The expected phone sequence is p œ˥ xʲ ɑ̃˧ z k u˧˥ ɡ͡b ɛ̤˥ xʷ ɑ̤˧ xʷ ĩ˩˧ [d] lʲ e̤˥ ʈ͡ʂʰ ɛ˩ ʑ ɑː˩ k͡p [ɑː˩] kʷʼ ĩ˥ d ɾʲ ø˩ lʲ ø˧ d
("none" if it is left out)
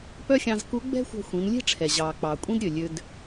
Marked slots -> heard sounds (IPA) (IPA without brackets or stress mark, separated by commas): n, ɑ˩